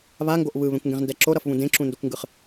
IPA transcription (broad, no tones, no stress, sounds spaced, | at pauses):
β a ŋ ɡ o ʔ β ɯ β ẽ kʷ ŋ ɡ ẽ ʁ n d ɛ ǁ o ɾ ʌ f β ũ d ẽ ǁ ũ n d o kʷ ŋ ɡ ɯ χ